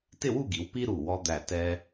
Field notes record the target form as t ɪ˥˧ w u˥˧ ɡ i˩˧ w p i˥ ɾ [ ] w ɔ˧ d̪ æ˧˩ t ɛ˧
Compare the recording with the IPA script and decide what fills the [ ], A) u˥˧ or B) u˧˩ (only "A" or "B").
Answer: B